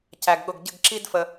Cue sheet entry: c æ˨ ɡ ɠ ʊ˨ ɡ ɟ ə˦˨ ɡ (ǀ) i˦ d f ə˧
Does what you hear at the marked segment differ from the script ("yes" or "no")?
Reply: yes